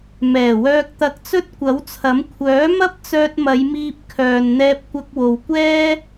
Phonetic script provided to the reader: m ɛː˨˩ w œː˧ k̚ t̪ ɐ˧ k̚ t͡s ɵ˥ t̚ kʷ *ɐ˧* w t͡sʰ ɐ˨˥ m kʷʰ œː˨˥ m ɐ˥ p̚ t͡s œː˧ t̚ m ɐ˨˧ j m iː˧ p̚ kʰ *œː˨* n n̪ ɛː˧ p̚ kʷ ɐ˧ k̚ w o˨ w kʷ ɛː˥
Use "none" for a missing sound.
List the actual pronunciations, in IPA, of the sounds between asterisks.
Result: ɐ˨˥, œː˨

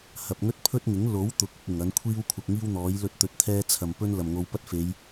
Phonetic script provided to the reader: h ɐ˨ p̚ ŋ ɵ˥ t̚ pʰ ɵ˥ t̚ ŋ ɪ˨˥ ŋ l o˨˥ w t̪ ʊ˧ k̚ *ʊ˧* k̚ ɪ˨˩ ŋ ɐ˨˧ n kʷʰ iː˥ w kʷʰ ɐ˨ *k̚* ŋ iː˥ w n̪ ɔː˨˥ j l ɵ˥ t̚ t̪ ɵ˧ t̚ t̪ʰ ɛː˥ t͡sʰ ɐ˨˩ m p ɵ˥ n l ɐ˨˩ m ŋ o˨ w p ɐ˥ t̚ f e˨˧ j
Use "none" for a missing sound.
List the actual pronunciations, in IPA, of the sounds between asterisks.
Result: ʊ˧, k̚

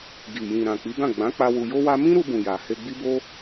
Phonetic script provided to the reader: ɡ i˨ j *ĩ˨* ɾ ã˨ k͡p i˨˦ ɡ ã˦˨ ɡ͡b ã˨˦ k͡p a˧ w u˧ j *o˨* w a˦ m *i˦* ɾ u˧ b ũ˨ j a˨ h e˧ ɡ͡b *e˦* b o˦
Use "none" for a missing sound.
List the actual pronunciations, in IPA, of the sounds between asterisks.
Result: ĩ˨, o˦, ĩ˦, i˦

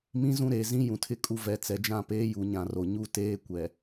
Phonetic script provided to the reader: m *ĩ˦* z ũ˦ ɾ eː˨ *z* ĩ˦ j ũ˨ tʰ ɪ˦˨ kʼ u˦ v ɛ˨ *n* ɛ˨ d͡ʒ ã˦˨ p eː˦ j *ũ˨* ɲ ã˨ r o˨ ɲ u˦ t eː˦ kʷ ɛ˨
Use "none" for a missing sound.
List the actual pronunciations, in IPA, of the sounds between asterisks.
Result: ĩ˦, z, t͡s, u˨

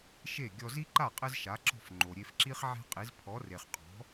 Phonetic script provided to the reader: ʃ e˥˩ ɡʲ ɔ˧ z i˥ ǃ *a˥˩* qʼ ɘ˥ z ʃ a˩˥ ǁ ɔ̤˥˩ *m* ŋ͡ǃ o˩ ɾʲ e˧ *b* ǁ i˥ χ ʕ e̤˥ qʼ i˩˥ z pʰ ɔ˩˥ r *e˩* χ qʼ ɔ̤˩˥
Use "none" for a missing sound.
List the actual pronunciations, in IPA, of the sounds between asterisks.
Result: a˥˩, f, f, e˩

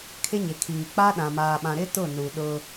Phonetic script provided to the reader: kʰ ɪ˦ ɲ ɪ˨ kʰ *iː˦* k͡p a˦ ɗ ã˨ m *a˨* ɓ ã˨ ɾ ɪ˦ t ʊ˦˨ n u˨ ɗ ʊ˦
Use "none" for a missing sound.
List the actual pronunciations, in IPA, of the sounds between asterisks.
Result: iː˨, aː˨

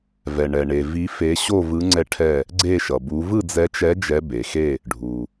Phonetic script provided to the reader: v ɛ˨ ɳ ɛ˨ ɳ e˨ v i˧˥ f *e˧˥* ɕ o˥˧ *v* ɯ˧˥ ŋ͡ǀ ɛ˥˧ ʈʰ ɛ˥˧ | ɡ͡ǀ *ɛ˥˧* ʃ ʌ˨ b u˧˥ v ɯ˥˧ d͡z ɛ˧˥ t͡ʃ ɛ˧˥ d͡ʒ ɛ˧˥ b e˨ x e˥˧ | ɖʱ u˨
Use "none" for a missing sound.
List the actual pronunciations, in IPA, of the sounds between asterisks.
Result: e˧˥, v, e˥˧

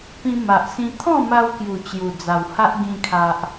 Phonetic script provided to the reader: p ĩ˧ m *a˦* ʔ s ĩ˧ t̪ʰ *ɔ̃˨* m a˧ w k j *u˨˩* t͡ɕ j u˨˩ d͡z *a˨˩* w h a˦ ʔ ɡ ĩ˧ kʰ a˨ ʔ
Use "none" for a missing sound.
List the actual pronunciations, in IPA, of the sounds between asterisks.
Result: a˨, ɔ̃˥˧, u˨˩, a˨˩

